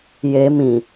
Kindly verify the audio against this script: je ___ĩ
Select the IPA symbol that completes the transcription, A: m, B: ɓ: A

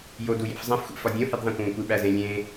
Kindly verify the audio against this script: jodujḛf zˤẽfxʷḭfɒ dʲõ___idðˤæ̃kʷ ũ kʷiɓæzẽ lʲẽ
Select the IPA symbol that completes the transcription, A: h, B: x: A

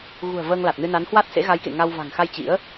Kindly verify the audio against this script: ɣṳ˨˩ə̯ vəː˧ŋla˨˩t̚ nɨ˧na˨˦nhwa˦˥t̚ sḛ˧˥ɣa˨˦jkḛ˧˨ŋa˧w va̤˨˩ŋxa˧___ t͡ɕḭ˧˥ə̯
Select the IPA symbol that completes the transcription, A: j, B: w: A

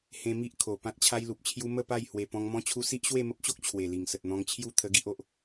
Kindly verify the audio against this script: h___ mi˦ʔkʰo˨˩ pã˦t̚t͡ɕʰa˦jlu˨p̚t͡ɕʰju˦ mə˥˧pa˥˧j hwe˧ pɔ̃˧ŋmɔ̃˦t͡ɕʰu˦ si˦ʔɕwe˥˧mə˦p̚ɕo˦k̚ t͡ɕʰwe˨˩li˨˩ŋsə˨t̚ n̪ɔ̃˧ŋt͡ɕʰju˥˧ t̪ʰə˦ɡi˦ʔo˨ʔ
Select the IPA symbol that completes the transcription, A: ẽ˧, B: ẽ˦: A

